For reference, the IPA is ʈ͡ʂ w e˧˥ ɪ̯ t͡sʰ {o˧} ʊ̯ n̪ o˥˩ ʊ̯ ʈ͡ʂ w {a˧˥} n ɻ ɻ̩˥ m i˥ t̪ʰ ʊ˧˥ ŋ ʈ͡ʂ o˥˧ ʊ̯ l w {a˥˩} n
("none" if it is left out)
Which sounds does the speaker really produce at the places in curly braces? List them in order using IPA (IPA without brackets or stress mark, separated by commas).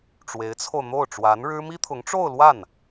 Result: o˧, a˧˥, a˥˩